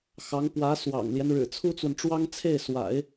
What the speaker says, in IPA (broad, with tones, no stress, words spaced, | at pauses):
xɑ˧˥ŋpwä˧˥swɑ̰˨˩ŋljɛ˦n ɻɻ̩˨˩t͡sʰu˥t͡swə˨nʈ͡ʂwɑ˥ŋ t͡sʰe˥˩ɪ̯swa̰˨˩˦ɪ̯